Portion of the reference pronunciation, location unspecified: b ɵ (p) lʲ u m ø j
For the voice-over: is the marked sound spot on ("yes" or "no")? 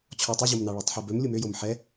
no